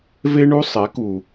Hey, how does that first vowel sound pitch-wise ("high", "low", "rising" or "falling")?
high